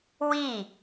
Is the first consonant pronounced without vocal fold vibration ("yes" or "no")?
no